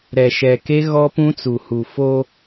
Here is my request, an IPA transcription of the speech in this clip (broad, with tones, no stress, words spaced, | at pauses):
ɾɛ˨ʃɛ˨ke˦ ɣɔ˦pũ˦t͡su˨ hu˨fo˦